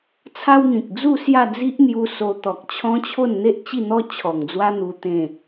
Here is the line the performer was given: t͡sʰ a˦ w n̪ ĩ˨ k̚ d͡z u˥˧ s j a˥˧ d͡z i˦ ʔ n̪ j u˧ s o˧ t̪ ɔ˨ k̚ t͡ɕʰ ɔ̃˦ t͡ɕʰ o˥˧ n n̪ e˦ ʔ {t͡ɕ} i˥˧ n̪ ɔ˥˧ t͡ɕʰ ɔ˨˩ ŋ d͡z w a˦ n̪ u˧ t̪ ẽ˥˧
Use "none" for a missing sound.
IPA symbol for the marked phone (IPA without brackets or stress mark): t͡ɕ